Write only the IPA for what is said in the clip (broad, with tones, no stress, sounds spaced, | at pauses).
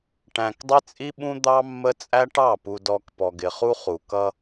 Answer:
ʈ æ̃˨ k dˤ ɪ˦ t͡sʼ i˦ ɓ ũ˦ d̪ ɑ˦ mː ə˦ t͡sʼ æ˦ ʈ ɑ˦˨ p u˨ d ɔ˨ k p ɔ˨ ɡ ɪ˨ χ u˦ χ u˨ k ʌ˦